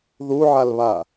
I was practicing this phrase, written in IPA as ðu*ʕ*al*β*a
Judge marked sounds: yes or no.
yes, yes

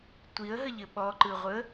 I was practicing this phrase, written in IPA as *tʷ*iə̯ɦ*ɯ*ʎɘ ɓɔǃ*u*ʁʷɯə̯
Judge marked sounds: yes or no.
yes, no, no

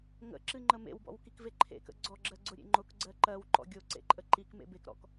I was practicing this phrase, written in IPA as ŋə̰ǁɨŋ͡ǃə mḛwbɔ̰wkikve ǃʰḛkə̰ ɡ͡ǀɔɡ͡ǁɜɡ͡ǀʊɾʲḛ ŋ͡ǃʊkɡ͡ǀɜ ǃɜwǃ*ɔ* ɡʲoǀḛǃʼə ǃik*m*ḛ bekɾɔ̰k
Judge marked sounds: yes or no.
no, yes

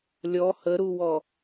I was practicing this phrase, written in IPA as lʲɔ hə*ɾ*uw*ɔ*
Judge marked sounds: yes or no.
yes, yes

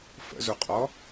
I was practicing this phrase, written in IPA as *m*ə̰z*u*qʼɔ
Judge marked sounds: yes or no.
no, yes

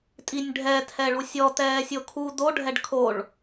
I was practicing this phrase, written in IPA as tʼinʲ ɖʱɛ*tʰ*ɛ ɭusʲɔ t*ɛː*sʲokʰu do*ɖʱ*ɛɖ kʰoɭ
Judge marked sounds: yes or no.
yes, yes, yes

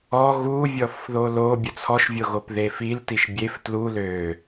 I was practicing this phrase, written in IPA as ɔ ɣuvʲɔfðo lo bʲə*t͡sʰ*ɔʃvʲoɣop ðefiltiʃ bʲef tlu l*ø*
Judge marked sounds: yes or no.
yes, yes

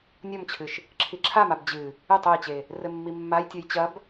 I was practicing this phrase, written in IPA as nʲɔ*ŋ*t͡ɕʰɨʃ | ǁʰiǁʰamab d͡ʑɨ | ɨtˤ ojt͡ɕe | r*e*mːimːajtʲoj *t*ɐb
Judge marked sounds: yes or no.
no, no, no

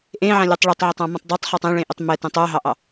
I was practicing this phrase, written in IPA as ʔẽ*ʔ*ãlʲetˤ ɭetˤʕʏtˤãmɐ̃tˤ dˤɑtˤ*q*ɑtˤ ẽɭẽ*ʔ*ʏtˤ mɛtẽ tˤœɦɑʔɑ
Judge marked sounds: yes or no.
no, no, yes

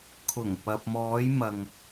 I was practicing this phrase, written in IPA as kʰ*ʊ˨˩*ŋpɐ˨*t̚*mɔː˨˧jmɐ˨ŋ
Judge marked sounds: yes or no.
yes, no

